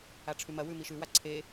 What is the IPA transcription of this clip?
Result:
aʈ͡ʂʰʉmɐwʉ miʃʉwa ǀʰe

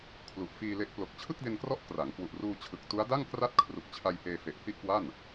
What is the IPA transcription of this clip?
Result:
kʰlu˨˩ʔfiː˧le˦˥ʔ plo˨˩k̚t͡ɕʰɯ˥˩k̚de˧nkrɔ˦˥ʔ kra˩˦ŋkwu˨˩ʔruː˧ t͡ɕʰɯ˨˩k̚tu˦˥a̯ da˥˩ŋkra˥˩t̚ kʰru˨˩k̚t͡ɕʰa˧j heː˧fe˨˩ʔhi˥˩ʔkwa˥˩n

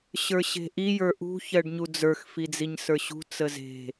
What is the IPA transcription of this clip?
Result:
ɕə˞ɕe̤ʔi jə˞ʔṳ çɜɖɲud͡zə˞x fid͡ziɲsə˞ɕṳ t͡səze̤

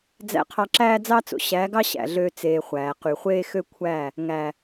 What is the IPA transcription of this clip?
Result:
d͡zæ̰˧qʰɑ˧ ǁæː˦d͡zɑ˦t͡so̰˨ ɕæ˨˦ɡɑ˦ ɕæ̰˨ɮøː˧ t͡seː˨ χʷæː˨qy˨χʷeː˦ xø˦kʷʰæ˦˨ | ŋæ˨

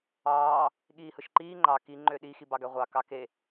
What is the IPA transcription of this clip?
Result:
ɑː | ɠiːhɯʃǃiː ŋ͡ǃɑ ki ŋ͡ǃøɗi xibɑɡæʁʷɑ kɑke

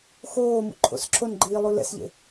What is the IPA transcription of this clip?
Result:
xoː mṵǃʰo̰sǁʰonɡ͡ǃiː lˠulɛ̰sʎḛ

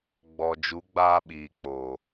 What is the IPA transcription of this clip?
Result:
ɡ͡bɔ˨d͡ʒu˨˦ ɡ͡baː˦ɓiː˨k͡poː˨

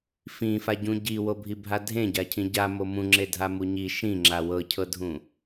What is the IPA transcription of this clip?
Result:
fĩfaɟũ ɟiwobʱibʱa dʱẽɟacʰĩ ɟamo mũŋ͡ǁedʱamu ɲi ʃĩŋ͡ǁa wɤcʰɤdʱũ

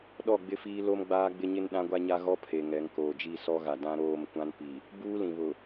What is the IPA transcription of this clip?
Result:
ɗɔ˦˨ɡ͡bɪ˦fiː˦ lo˦mɡ͡baː˦ɡ͡bɪ˦ɲɪ˦n ɗã˦ɡʷa˦ɲa˦ɣɔ˦ pʰe˨ŋɛ˨˦ŋ koː˨d͡ʒi˦˨sɔ˦ɣa˨ dã˦ɾoː˦˨mkʷã˦npi˨ | buː˦lĩ˨βʊ˨

